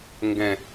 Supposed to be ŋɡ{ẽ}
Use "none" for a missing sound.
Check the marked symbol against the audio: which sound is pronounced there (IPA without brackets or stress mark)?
ɛ̃